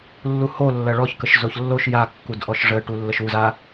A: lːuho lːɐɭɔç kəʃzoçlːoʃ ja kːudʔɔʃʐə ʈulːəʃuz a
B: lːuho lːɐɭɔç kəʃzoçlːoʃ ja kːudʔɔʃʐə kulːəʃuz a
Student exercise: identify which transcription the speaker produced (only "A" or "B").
A